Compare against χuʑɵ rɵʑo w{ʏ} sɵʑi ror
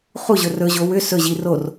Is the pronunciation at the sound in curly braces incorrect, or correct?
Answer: correct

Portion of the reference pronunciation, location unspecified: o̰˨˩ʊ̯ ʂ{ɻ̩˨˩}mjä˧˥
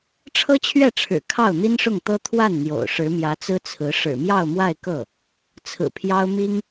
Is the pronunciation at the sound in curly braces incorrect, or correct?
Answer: incorrect: ɻ̩˧˥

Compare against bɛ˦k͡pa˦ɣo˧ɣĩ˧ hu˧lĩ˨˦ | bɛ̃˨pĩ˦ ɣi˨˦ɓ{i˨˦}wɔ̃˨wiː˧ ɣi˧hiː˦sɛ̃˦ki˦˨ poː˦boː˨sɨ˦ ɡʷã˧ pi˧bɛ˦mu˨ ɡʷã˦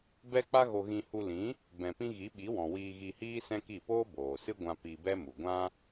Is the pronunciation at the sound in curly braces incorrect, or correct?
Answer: correct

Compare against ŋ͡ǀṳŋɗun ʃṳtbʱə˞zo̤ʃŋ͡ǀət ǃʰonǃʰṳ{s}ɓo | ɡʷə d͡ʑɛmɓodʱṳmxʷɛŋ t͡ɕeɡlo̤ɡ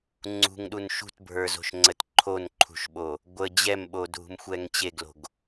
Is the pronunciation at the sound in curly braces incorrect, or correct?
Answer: incorrect: ʃ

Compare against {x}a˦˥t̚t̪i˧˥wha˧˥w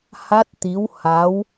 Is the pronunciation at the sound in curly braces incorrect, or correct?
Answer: incorrect: h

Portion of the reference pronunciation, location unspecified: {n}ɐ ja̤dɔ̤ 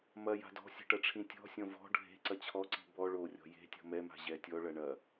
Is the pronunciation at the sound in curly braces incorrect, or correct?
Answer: incorrect: m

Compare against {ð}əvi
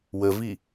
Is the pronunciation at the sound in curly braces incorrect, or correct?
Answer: incorrect: w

